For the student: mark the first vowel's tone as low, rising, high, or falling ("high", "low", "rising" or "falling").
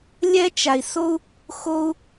high